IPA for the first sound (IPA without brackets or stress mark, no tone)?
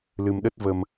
l